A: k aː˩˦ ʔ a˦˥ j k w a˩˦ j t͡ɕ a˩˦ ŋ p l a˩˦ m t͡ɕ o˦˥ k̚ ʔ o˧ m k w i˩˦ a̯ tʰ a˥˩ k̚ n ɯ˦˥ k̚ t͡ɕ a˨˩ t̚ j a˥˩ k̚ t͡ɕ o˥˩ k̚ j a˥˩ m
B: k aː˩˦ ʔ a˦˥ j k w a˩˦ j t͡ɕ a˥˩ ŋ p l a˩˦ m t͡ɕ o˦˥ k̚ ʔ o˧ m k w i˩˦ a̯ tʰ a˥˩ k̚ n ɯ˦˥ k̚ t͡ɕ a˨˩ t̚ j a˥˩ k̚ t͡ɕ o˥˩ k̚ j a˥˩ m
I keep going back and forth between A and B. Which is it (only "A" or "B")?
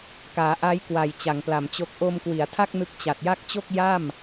A